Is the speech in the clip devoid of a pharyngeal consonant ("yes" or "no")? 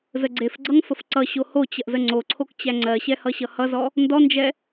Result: yes